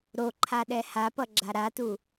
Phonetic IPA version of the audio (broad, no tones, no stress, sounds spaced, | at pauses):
ɾ o ǃʰ a ɗ ɛ h a p ʌ ɡ͡ǁ a ɾ a t u